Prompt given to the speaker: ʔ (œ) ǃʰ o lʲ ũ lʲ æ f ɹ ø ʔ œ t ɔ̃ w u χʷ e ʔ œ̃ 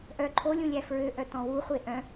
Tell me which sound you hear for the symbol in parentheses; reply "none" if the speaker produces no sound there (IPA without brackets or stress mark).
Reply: œ